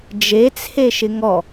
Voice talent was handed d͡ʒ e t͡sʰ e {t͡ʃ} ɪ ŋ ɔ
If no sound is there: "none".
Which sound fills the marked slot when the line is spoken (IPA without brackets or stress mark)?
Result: ʃ